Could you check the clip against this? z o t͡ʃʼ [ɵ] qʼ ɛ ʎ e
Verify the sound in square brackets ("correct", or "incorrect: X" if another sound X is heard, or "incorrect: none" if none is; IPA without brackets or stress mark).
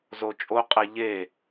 incorrect: o